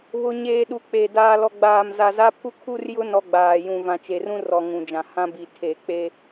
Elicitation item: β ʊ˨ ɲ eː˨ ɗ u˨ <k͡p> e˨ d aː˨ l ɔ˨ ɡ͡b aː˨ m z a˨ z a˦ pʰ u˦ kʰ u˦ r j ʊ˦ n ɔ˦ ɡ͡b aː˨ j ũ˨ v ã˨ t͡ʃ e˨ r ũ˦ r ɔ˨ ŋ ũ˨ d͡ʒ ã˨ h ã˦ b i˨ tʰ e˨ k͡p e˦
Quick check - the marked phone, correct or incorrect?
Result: correct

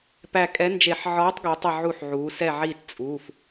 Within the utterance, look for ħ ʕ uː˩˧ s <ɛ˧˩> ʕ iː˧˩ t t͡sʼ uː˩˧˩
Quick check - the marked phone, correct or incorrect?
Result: correct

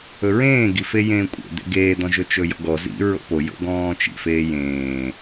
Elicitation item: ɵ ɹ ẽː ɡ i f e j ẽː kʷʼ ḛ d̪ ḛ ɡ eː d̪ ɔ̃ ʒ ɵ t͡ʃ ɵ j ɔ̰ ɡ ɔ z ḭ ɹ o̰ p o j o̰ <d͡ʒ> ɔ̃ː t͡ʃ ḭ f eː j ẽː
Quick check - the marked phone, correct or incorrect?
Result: incorrect: ɡ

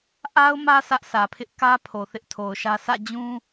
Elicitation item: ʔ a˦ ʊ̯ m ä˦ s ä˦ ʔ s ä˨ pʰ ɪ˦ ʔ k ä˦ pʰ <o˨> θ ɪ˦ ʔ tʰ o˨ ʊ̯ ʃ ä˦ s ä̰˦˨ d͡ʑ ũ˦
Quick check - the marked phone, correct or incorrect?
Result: correct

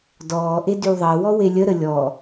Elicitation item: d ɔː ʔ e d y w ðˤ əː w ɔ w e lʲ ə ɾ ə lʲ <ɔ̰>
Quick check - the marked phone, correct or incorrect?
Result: incorrect: ɔ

